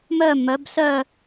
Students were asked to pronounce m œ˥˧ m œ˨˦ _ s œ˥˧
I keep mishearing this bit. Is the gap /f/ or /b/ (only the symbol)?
b